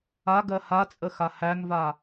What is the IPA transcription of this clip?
a ɡ ɜ h a t͡sʼ ə x a h æ ŋ v a

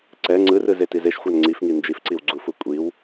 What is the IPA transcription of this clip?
ǀ ɛ ŋ͡ǀ ɯ r ɯ z e t i z e ʃ xʷ a n ŋ͡ǀ i f ŋ i n d͡ʒ i f ǀ i w ɡ͡ǀ u f u kʷʼ i w

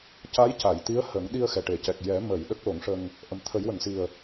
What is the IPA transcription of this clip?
c a˧˥ j c a˨˩˨ j t̪ i˧˥ ə̯ h ə˨˩˦ ŋ ɗ i˧ ə̯ x ɛ˨˩˨ ʈ e˨˩˨ c ɛ˨˩ k̚ j ɛ˨˩˦ m ə˨˩˨ j ɗ ə˦˥ k̚ l o˨˩˦ ŋ ʂ ə˧ ŋ | ʔ ə˨˩ m t̪ʰ ə˨˩˦ j w ə˨˩˨ ŋ s i˨˩ ə̯

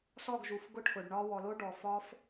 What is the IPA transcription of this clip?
s ɔ˦˨ ɡ ʒ u˨ f ɡ ʊ˦ ʈʰ ʊ˨ ɖ ɳ ɒ˦ w ɔ˨ l o˦ ɖ ɔ˨ f ɒ˦ f

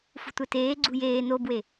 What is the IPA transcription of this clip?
f ṳ tʷ ɛ t eː ɡ͡ǀ ṳ j eː n o b w e

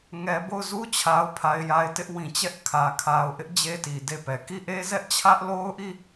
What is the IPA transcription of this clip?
ŋ ɛ˨ b o˦˨ ʊ̯ z u˦ t͡ɕʰ a˨ ʊ̯ pʰ a˨ ɪ̯ j a˨ ɪ̯ t ɪ˦ ʔ w ĩ˨ t͡ɕ ɛ˦ ʔ kʰ ä˨ kʰ a˨ ʊ̯ ʔ ɪ˦ ʔ d͡ʑ e˦ t i˨ d e˦˨ p ɛ˨ k i˦˨ ʔ e˦ z ɛ˦ ʔ t͡ɕʰ ä˦ ʔ l o˦ ʊ̯ ʔ i˦˨

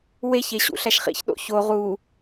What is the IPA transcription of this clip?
w e ç e ɕ ṵ ɬ æ ʃ χ ḭ ç ɗ o̰ ç o ʁ u

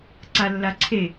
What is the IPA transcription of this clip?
ǀ a lː a ǀʰ e

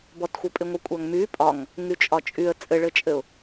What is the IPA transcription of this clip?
b ɔ t xʷ ɘ pʼ ɪ ŋʷ i kʷʼ a ŋ m y pʼ ɒ ŋ | ŋ y t͡ʃʼ ɒ t͡ʃʼ y ə̯ t͡sʼ ɘ ɭ ɘ t͡ʃʼ ɘ ʊ̯

